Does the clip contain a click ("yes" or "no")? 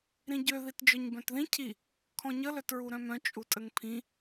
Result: no